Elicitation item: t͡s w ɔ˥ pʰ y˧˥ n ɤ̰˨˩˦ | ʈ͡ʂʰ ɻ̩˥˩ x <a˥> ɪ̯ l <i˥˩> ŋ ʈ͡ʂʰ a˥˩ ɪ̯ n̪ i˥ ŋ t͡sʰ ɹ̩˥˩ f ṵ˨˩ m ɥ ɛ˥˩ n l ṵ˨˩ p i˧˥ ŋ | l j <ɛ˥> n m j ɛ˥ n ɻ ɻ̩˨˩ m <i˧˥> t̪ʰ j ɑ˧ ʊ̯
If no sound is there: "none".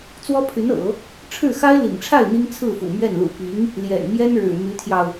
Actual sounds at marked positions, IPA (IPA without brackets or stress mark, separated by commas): a˥, ḭ˨˩, ɛ̰˨˩, y˧˥